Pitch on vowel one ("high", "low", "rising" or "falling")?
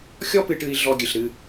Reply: high